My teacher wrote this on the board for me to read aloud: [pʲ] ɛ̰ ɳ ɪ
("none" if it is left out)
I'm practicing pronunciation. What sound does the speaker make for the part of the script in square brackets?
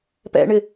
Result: p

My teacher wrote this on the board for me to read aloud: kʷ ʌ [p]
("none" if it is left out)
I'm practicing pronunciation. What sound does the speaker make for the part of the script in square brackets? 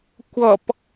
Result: p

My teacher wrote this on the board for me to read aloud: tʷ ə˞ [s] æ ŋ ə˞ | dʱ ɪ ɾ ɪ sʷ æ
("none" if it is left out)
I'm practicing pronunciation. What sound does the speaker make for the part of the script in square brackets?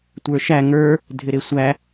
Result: ʃ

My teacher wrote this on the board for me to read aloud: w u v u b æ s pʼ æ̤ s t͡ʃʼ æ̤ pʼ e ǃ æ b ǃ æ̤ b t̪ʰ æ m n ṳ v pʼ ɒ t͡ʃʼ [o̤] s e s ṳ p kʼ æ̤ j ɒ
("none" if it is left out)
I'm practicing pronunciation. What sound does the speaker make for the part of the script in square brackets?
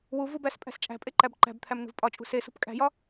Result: ṳ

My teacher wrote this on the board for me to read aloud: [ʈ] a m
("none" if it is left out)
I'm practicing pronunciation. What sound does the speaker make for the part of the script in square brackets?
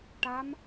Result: ʈ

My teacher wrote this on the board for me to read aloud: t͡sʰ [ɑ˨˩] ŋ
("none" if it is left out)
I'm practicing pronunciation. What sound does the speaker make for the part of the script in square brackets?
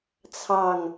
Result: ɑ˨˩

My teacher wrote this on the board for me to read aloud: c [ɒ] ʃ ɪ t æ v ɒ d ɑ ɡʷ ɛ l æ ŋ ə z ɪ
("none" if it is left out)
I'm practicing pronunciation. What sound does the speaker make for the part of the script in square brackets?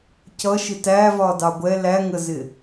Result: ʌ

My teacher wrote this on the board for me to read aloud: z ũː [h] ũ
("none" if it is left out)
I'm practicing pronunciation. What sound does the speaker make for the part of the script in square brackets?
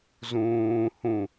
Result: h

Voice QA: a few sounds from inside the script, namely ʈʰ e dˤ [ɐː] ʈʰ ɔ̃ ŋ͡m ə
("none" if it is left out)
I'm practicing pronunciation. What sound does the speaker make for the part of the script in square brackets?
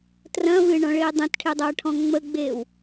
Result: ɐː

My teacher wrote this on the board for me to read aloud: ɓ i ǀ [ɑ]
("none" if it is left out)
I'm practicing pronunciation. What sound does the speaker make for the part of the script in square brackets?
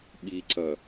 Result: ʌ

